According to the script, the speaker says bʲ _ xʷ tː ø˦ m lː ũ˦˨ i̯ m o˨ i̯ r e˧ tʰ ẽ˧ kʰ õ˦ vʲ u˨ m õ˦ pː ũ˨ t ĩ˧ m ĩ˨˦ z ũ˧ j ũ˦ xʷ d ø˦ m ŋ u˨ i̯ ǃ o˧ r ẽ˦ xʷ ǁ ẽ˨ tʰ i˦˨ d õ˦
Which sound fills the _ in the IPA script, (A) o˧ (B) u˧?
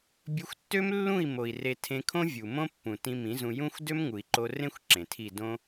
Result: A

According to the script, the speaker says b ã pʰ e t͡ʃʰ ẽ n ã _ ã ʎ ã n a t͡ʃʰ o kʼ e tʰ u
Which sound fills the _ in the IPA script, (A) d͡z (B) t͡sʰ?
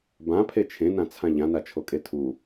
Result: B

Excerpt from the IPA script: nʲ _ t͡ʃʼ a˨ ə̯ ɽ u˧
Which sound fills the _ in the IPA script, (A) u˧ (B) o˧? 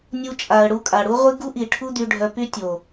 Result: A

